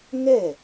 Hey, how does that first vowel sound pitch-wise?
falling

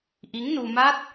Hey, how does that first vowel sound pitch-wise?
rising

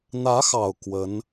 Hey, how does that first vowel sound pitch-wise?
rising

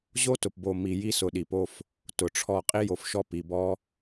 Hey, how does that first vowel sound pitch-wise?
high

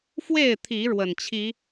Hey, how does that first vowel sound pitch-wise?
falling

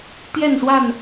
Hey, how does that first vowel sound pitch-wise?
falling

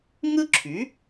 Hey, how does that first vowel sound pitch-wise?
high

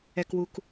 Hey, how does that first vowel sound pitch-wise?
low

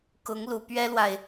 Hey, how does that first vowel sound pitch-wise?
rising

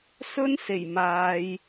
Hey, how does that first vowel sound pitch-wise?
high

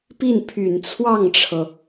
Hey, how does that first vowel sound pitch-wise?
falling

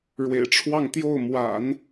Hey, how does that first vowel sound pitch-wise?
low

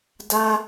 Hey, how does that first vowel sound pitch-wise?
high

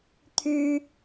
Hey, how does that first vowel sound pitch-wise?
high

